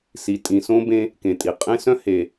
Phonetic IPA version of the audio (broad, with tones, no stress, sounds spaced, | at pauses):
s i˨ tʼ ĩ˨ s õ˦ b ẽ˦ | k ẽ˨ tʼ i˨ qʼ ẽ˦ s œ̃˦ h e˨